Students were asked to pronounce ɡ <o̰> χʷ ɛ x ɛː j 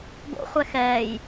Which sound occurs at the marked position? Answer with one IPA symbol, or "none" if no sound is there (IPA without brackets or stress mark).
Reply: o̰